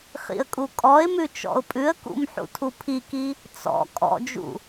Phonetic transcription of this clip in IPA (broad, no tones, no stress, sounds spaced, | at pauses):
χ ḭ ə̯ kʼ u kʼ ɔ ɪ̯ m ʉ t͡ʃ ɔ̰ ʊ̯ pʼ ʉ ə̯ k ṵ m ħ ṵ tʰ u pʰ i k i | t͡s ɔ̰ kʼ ɔ̰ d͡ʒ ṵ